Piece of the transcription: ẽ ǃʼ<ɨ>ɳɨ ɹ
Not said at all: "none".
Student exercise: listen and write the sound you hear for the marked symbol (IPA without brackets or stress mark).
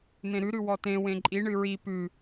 i